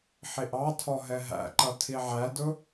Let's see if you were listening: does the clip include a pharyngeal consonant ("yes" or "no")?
yes